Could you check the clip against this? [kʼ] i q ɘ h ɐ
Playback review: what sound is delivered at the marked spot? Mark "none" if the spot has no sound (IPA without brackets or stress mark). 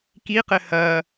k